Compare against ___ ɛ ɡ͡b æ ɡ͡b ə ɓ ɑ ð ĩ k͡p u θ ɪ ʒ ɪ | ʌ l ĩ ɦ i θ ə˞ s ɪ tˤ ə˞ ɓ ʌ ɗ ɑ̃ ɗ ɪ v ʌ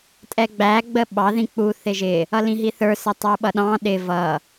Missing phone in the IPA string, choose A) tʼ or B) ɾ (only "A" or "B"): A